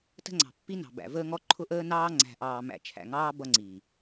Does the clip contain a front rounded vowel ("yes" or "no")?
no